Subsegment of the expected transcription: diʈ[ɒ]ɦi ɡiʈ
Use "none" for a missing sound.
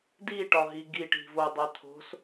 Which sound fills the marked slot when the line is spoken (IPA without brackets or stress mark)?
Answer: ɒ